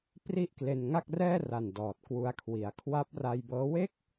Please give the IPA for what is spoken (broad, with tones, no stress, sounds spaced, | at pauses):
p r i˥˩ ʔ k l e˧ n ŋ a˥˩ k̚ r ɛː˥˩ r a˨˩ n d ɔː˨˩ t̚ k w u˦˥ a̯ kʰ w i˨˩ a̯ kʰ w a˦˥ p̚ r a˧ j b ɤː˦˥ w e˥˩ k̚